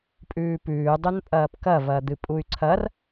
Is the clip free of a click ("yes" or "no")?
no